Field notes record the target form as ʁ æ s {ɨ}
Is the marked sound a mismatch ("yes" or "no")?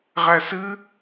no